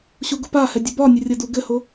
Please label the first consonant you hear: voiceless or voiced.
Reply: voiceless